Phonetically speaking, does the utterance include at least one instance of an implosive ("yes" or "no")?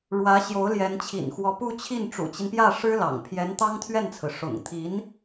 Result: no